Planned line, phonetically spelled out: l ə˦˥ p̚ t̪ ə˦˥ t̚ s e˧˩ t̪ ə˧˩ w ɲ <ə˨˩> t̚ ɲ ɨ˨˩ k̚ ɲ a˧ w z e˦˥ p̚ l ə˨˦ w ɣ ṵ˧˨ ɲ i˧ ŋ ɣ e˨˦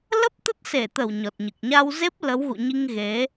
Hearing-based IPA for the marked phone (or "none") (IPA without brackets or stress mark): ɔ˨˩